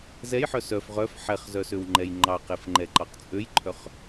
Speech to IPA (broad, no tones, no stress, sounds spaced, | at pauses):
z ɛ j ħ œ s œ f ʁ œ f ħ ɛ χ z œ s ø w ŋ͡ǃ ɛ j ŋ͡ǃ ɑ q e f ŋ͡ǃ ɛ ǃ ɑ q t͡sʼ ø j ǃʰ œ χ